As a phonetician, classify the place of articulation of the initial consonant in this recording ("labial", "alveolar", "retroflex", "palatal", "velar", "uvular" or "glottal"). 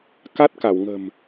velar